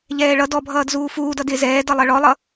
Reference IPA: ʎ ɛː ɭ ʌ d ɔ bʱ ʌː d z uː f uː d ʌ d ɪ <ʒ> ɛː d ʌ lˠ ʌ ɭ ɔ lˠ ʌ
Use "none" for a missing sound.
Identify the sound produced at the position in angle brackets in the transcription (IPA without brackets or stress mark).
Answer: z